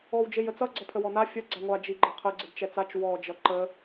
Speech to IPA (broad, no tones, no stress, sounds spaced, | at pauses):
ɔ w d͡ʒ e j ə t͡s ʌ ɡ͡ǀ ʌ pʰ ə w ɔ n a fʲ ə ɡ͡ǀ a ŋʷ a d͡ʒ i ɡ͡ǃ ə qʰ ə ɡ͡ǀ ə d t͡ʃ ɛ t͡s a t͡ʃ w ɔ d͡ʒ ʌ ǃ ə